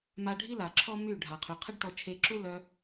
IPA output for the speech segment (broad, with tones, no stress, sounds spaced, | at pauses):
m a˧ ɖʱ i˦ l a˨ ǁʰ ɔ˦ m y˦˨ ɖʱ a˨ qʰ y˨ qʰ ə˦ ɖ t ɔ˧ t͡ʃʰ e˧ ǁ u˦ l œ˧